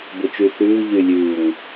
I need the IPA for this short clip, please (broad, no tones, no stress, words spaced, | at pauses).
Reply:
bʊt͡ʃyθʉː ʎylʲʉːŋ